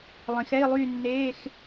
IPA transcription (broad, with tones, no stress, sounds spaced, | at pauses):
lˠ ĩ˩˧ x ɛ˧˥˧ i̯ lˠ yː˥˧ nː eː˧˥˧ x